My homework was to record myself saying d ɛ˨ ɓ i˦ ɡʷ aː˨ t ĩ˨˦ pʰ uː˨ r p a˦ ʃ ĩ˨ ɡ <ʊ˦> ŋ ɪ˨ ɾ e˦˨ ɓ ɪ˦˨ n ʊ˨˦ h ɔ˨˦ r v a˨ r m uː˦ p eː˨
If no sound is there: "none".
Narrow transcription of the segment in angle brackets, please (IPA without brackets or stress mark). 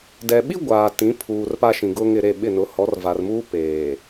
ʊ˦